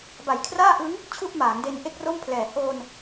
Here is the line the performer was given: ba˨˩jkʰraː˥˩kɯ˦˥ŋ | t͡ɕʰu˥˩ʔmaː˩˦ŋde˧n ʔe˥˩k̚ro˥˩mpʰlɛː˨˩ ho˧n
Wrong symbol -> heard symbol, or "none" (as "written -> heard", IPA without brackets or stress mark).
k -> ʔ